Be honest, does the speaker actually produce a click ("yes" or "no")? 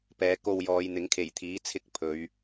no